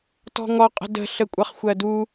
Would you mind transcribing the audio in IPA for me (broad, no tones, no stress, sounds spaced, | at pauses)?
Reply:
t ɔ̤ ŋ ɔ qʼ ə̤ d ə̤ ɬ ə kʷʼ ʌ χ xʷ ɜ d u